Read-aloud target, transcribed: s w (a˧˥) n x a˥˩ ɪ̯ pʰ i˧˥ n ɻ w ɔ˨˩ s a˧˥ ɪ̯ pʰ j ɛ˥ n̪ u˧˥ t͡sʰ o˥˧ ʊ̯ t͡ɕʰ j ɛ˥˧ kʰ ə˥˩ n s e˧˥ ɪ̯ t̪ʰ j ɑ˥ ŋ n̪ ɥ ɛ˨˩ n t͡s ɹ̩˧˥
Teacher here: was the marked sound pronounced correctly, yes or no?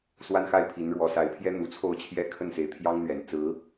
no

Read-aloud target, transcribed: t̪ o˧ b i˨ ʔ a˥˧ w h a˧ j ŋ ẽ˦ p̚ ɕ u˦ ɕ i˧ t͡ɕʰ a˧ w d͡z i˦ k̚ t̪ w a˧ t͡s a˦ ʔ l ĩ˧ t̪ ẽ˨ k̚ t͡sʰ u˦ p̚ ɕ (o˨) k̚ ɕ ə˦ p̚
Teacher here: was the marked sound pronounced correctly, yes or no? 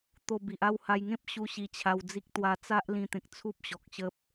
no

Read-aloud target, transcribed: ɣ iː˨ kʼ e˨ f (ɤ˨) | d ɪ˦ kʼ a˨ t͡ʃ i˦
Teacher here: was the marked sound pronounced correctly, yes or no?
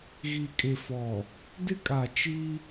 no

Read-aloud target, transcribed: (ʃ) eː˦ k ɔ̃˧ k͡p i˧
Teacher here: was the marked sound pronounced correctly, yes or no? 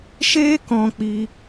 yes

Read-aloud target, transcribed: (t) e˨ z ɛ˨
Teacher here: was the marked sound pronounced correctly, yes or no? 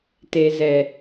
yes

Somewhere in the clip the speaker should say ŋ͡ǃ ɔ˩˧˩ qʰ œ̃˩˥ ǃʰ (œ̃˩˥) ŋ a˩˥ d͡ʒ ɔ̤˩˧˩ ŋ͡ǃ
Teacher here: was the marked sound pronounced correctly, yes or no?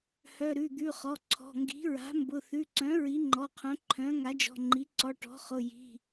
yes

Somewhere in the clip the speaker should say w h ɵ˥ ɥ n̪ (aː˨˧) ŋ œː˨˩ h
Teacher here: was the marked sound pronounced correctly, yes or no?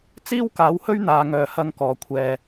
no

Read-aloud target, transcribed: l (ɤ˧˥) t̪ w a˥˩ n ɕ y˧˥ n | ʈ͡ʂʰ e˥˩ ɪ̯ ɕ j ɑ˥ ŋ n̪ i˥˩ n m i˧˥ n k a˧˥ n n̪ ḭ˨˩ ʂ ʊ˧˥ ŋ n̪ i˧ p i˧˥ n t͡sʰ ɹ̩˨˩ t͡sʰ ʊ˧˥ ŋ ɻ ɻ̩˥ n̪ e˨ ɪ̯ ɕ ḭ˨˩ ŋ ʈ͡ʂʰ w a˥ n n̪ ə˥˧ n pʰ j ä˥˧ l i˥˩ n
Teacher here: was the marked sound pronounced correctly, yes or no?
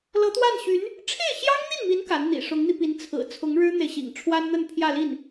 yes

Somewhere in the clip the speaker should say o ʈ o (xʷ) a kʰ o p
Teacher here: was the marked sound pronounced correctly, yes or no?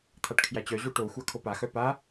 yes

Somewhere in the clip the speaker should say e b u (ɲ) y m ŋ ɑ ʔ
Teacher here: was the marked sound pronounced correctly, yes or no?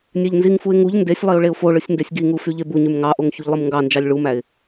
yes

